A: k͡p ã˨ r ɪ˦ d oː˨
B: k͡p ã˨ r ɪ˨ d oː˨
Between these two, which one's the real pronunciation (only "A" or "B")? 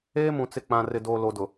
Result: B